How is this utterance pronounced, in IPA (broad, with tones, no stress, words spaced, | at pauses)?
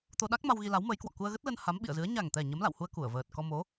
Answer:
t̪o˧ɗa˦˥k̚ma˧w ɣi˧la˨˦wməː˨˦jkwɔ̰˧˨ ku˧ə̯ɣə˦˥t̚lə˧n ha˨˦mɓḭ˧˨ə̯zɨ˨˦ə̯ ɲa˨˩ŋt̪ɛ˨˩ ɲə˨˦mla̰˧˨whu˧ə̯ ku˧˩ə̯vəː˨˩t̚ kɔ˧mo˨˦